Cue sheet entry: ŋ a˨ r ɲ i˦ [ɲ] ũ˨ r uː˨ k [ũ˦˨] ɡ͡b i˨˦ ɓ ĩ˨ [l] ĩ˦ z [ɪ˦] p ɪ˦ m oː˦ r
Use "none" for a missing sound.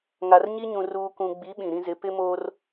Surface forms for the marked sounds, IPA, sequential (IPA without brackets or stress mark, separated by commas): ɲ, ũ˨, ɾ, ɪ˨˦